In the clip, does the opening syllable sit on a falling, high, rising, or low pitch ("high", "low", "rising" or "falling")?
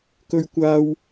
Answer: high